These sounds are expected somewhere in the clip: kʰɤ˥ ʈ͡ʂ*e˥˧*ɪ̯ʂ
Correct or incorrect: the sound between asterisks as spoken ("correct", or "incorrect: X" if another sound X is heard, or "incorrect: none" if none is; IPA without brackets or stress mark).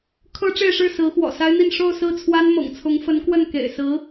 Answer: correct